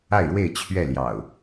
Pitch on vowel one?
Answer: falling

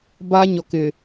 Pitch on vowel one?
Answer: high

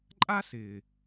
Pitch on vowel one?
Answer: high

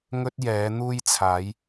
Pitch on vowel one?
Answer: high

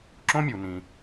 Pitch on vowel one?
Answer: high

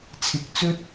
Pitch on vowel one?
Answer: rising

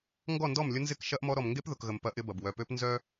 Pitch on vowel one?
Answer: falling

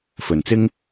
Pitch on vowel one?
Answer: low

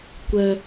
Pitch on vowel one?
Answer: high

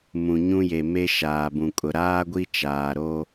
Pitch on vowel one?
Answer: low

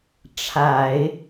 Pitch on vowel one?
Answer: low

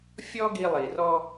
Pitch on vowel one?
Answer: high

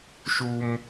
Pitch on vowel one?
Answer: low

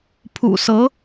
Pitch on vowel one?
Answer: low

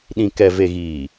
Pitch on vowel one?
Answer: low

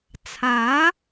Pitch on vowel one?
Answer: rising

